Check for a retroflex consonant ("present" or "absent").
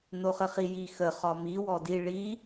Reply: present